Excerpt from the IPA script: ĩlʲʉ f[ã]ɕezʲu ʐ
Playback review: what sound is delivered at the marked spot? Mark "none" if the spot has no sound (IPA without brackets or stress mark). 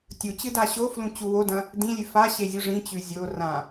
a